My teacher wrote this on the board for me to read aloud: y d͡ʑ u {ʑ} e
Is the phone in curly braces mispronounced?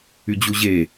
no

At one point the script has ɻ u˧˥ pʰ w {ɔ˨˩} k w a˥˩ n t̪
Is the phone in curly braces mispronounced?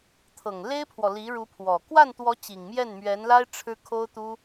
no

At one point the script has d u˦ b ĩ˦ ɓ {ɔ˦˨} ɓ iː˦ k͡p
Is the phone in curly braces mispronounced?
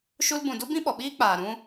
yes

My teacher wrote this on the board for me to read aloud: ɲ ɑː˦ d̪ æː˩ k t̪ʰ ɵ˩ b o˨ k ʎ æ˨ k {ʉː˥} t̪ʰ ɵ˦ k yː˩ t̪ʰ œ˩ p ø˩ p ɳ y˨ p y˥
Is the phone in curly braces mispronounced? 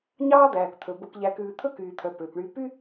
yes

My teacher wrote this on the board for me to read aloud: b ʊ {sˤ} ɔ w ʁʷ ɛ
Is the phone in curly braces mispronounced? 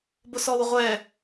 yes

